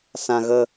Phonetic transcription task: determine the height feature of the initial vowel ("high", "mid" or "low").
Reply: low